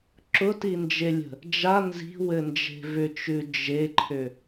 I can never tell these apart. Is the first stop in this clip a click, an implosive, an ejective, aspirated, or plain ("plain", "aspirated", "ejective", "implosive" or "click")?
click